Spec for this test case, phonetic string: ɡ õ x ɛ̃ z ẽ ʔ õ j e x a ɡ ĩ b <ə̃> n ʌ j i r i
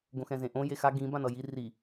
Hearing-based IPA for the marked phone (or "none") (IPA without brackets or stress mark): ã